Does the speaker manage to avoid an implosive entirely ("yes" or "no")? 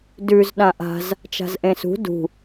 no